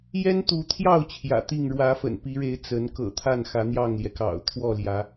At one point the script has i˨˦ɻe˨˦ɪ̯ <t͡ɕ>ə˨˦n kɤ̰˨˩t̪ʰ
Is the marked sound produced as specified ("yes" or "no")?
no